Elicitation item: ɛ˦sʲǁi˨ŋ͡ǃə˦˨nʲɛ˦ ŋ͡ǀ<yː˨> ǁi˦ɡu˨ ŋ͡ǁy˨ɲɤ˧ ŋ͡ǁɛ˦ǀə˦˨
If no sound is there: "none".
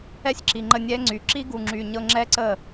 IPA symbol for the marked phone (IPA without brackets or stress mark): y˨